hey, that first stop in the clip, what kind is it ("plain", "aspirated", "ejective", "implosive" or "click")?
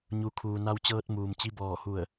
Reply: aspirated